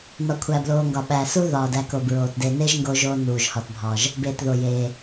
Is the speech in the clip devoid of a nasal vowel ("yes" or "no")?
yes